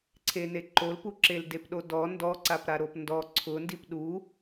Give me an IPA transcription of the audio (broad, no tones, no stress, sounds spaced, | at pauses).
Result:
ǀʰ e n e ǃ o l p u ǁ e l d e p ɗ o d ɔ n d ɔ ǀ a p ɾ a ɾ o p n d ɔ ǀʰ ʊ n d i p ɗ u